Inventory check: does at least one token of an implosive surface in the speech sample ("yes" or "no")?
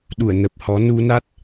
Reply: yes